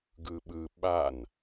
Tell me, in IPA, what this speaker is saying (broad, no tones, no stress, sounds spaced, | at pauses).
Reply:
ɡ ɯ ɓ ɯ ɓ a n